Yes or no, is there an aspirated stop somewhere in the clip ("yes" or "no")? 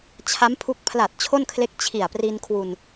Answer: yes